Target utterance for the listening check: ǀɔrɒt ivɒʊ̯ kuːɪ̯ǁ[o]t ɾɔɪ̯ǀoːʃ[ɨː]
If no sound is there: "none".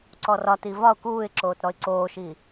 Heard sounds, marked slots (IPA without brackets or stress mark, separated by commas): oː, iː